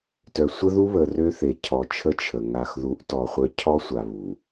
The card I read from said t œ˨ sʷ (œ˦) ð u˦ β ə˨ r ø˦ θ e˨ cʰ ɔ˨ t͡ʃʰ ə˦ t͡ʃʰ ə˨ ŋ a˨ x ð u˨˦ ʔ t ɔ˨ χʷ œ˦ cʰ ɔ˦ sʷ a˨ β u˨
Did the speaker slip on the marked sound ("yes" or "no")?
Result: yes